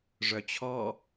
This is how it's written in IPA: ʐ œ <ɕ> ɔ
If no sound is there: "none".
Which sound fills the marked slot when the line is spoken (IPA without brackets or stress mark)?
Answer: t͡ɕʰ